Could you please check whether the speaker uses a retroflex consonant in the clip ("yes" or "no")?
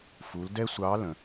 no